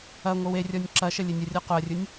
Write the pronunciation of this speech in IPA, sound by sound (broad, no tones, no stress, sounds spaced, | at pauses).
ɐ ŋʷ ə w e rʲ ɔ nʲ ǁ ɐ ʃ ə lʲ e nʲ ə rʲ ɔ q ʊ ɐ̯ rʲ ʊ nʲ